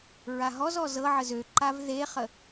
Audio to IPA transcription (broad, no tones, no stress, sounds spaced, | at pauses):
ɹ a ɦ ɔ z ɔ z ɤ ʕ ə z ø ǃ a v ð e χ ə